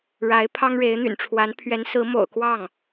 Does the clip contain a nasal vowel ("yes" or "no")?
no